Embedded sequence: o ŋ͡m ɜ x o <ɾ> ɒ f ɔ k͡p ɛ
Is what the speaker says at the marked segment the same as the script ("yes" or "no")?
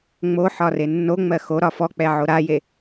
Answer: yes